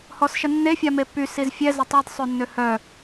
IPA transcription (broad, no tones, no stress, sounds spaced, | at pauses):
h ɔ s ʃ ə nː e fʲ a m e pː y s i z fʲ ɛ z ə tˤ ɛ d sˤ ø nː ø h œ